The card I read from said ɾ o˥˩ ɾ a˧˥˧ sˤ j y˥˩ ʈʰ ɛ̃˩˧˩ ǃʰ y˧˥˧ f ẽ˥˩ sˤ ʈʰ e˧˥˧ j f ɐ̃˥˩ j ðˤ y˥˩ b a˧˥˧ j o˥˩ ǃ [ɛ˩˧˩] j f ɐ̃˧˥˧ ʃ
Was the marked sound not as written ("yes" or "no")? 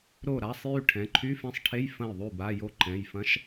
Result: yes